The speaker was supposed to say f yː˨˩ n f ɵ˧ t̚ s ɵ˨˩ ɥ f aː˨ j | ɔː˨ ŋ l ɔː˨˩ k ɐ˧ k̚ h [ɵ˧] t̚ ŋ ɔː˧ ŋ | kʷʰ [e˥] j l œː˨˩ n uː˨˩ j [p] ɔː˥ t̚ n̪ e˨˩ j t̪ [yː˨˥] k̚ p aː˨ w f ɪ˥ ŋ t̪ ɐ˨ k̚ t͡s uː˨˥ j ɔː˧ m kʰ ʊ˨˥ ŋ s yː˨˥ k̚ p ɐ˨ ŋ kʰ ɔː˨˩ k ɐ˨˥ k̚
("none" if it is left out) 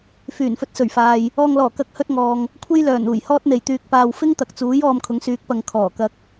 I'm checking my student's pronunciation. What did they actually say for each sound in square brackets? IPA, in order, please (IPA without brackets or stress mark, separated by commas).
ɵ˥, e˥, h, yː˨